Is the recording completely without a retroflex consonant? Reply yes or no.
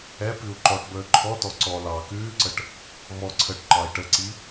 no